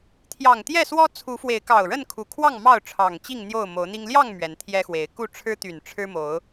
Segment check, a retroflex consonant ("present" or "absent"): present